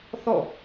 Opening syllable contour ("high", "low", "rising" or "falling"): falling